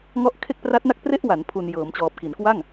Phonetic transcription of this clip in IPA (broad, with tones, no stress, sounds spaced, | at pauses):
ŋ ɔ˦˥ ʔ kʰ e˥˩ k̚ p r a˦˥ t̚ n a˥˩ k̚ p r e˥˩ ʔ w a˩˦ n pʰ u˨˩ n j ɤː˩˦ m t͡ɕ ɔː˨˩ p̚ k i˩˦ n k w a˥˩ ŋ